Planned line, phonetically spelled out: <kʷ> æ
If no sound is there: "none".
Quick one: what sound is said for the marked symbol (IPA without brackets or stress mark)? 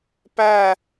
p